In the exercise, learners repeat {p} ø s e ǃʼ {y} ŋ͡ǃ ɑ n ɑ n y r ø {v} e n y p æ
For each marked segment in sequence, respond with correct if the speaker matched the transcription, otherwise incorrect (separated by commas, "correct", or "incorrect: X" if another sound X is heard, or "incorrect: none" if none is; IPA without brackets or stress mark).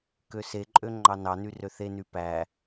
incorrect: k, incorrect: ø, incorrect: θ